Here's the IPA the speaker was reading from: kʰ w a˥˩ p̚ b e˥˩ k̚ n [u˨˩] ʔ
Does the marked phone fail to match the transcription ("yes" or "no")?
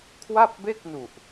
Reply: no